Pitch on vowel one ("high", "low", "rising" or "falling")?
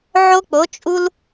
high